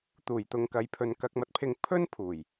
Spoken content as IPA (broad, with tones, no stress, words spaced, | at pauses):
t̪uː˨˩jt̪ʊ˨ŋkɐ˨jpʰɵ˨n kɐ˧k̚mɐ˧t̚pʰɪ˧ŋ pʰɵ˥n pʰuː˨˩j